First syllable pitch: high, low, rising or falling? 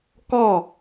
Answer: falling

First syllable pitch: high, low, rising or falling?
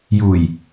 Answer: low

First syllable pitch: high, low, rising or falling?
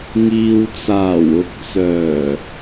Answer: low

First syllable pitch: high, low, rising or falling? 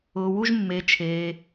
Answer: low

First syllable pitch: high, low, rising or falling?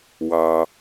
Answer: low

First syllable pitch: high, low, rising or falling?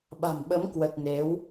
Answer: low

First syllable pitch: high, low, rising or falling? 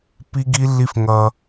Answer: high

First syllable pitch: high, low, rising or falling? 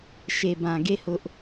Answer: low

